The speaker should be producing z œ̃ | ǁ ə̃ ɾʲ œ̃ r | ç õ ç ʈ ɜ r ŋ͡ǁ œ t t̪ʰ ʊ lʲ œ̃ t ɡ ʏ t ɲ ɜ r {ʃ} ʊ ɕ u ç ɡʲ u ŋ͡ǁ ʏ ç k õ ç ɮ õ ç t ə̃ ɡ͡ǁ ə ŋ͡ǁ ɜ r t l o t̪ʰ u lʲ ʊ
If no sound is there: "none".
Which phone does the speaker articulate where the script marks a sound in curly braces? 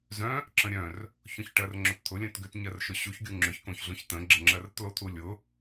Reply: ʃ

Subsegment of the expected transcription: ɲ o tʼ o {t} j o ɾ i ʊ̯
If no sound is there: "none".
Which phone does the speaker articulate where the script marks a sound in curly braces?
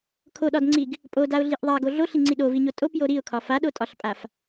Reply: p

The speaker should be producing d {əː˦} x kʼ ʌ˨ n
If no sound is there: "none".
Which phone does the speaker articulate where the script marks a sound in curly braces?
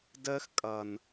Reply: əː˦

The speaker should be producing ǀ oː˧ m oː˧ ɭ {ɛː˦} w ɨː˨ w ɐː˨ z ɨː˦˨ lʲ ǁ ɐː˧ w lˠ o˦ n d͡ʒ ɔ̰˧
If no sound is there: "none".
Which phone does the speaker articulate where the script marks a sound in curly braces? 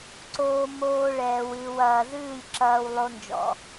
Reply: ɛː˨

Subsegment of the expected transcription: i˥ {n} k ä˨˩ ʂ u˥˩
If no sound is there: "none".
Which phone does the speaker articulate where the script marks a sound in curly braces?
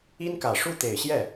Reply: n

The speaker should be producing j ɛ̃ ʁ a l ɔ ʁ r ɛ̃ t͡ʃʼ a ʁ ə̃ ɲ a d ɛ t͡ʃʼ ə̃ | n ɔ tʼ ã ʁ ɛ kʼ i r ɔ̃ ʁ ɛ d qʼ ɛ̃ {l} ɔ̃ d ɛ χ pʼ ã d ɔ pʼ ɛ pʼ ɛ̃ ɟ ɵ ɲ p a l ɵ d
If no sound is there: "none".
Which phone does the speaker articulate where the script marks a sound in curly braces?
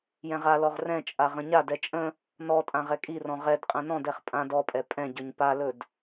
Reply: n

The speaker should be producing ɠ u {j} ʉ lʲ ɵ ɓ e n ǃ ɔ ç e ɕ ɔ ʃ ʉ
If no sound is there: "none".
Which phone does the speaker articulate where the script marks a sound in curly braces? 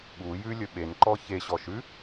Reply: j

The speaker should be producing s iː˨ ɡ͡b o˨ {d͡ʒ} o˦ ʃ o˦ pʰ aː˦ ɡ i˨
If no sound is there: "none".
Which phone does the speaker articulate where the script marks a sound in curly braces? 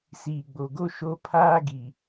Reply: ɡ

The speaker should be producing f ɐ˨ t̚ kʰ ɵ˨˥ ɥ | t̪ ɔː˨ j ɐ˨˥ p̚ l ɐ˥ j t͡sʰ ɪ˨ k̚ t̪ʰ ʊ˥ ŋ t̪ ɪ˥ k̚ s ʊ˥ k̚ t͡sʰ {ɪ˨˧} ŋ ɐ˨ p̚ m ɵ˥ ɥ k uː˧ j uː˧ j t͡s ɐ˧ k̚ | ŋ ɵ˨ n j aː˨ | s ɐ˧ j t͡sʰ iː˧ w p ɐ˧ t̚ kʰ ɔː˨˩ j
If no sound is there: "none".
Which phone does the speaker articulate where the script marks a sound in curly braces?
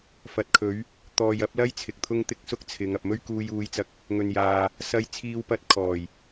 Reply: ɪ˨˧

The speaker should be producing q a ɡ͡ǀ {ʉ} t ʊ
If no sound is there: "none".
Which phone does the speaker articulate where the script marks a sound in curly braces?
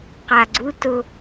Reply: u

